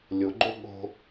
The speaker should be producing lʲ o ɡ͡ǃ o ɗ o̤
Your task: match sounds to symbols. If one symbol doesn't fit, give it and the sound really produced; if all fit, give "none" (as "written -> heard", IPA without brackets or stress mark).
ɗ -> ɠ